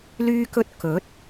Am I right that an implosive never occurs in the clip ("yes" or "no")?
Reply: yes